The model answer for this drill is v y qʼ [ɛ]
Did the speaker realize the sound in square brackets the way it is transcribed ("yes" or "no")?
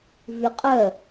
no